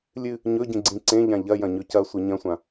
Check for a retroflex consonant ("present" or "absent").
absent